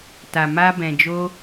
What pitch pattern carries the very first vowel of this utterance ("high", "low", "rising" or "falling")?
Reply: low